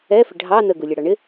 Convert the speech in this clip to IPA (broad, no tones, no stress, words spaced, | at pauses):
ɛfɪ ɖʱɑ nəɡulʲʌɽɑ ɳɪ